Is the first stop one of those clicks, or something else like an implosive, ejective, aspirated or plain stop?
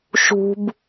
plain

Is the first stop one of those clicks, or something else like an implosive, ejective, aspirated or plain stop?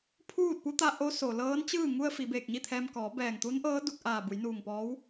aspirated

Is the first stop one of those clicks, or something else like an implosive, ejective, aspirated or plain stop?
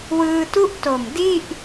plain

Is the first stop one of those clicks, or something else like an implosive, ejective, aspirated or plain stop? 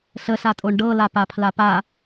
ejective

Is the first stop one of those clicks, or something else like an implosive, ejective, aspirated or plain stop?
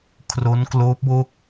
aspirated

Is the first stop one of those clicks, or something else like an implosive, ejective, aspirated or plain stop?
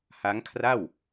aspirated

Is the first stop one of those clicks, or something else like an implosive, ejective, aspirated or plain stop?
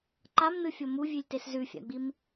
click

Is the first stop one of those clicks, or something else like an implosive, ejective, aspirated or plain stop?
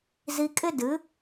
ejective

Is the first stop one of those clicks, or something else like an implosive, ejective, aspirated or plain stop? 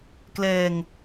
plain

